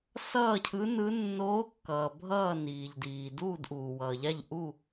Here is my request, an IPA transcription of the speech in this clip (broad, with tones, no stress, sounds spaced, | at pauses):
s ʌː˥˨ cʰ ɯ˧˥ n ɯ˧˥ nː oː˧˥ kː ʌː˩ bʱ ʌː˥˨ n iː˩ ʎ d iː˩ d uː˥˨ d ʔ uː˩ w ʌː˩ ʎ a˥˨ ʎ ʔ u˥˨